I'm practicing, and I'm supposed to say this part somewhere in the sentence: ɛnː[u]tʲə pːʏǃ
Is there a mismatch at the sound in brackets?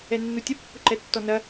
no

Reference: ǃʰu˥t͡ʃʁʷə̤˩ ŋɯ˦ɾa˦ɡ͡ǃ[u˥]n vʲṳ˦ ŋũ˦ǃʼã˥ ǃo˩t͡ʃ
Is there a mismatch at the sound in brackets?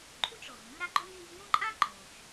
yes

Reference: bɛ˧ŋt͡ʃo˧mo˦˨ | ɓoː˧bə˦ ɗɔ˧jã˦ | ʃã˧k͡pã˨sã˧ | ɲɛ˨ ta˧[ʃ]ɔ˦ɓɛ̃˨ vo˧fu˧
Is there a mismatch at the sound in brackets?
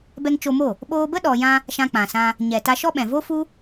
no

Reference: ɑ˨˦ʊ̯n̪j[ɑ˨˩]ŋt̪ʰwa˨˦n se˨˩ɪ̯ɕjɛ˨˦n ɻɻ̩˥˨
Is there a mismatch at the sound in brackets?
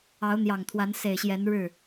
no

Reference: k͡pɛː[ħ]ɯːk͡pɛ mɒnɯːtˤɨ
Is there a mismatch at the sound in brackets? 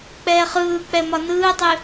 yes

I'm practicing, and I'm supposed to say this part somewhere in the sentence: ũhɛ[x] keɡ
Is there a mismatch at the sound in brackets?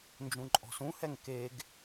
yes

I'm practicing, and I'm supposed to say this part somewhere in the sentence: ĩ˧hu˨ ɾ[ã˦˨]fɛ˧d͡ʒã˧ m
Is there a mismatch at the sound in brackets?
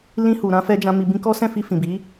yes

